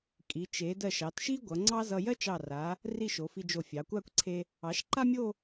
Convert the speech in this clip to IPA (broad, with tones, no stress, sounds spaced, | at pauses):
kʼ i˩˧ t͡ʃ e˩˧ d ɜ˧˩ ʃ ɑ˩˧ t ʃ i˥ ɡʷ ʌ˩˧ ŋ͡ǀ ɑ˥ z ʌ˧ j ɜ˥ t͡ʃ ɑ˧˩ r a˩˧ | r i˥˧ ʃ o˩˧ f i˧ d͡ʒ o˧˩ fʲ ɑ˩˧ kʷ a˥˧ kʷ ǀʰ e˧ | ɑ˩˧ ʃ ǃ a˥ mʲ o˥˧